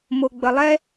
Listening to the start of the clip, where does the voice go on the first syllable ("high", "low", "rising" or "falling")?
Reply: low